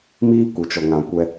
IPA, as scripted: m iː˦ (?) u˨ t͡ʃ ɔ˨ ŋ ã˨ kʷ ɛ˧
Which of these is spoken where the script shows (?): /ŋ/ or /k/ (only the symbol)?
k